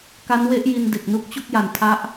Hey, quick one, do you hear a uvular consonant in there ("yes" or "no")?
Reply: no